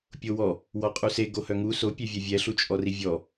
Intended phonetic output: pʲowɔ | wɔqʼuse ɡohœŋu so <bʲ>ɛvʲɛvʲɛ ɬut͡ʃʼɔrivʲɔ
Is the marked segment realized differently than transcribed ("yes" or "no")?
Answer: yes